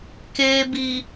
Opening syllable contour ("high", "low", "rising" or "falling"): low